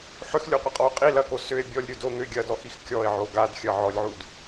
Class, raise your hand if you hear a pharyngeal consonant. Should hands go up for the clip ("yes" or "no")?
yes